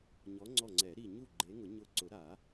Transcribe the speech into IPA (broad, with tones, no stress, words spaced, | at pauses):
ɲɔ˨˦ŋ͡ǀɔ˧˩ ŋ͡ǀɛ˨˩˦ɾi˧˩ɲu˥˩ ɡ͡ǃe˨˦ŋʊ˨˩˦ ɲʊ˧˩ ǀʊ˨˩˦ɾa˨˩˦